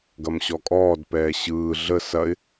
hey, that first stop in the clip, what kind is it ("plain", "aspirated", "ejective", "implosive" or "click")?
plain